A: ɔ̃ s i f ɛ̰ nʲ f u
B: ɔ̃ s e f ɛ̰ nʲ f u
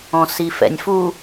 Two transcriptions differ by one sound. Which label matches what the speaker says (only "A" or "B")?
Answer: A